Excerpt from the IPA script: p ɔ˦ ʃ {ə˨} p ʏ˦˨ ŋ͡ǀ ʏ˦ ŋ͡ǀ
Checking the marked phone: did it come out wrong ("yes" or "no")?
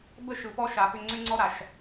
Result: yes